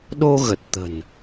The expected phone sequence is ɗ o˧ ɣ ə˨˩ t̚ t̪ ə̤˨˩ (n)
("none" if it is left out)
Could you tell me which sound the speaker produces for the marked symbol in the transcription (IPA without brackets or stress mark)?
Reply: n